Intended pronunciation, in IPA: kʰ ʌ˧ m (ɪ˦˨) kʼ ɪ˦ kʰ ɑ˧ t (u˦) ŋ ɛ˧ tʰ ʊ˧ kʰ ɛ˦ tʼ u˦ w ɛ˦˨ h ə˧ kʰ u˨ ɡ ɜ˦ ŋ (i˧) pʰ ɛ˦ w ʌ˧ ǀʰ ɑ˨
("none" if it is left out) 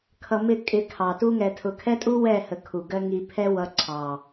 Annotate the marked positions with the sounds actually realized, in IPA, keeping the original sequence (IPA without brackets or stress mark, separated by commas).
ɪ˦˨, u˦, i˧